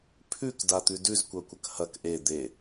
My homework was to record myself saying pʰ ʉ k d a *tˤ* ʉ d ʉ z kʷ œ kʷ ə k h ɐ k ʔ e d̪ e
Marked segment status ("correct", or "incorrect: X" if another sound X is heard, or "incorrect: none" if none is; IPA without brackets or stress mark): incorrect: t̪